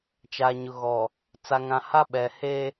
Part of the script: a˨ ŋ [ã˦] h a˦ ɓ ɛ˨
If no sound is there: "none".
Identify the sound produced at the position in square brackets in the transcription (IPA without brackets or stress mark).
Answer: ã˨